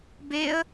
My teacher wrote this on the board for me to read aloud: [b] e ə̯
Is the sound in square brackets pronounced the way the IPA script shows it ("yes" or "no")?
yes